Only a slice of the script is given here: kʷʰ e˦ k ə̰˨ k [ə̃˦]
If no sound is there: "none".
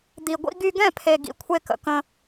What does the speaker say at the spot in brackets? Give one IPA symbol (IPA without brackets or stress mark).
ə̃˦